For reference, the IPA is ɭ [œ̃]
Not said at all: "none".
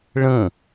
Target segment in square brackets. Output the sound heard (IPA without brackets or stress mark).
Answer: ə̃